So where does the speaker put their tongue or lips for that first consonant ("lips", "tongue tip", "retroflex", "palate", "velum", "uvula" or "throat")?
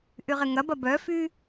throat